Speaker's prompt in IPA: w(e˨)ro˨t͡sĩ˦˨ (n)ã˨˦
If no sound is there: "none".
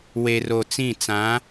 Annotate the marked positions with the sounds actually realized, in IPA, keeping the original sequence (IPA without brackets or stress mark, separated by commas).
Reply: e˨, t͡s